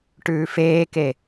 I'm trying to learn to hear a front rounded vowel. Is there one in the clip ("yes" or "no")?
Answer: no